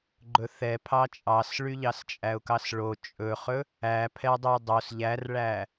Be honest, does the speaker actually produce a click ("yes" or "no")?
yes